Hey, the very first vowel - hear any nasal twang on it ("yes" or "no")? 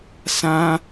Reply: yes